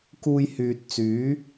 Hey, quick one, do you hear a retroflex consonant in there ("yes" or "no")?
no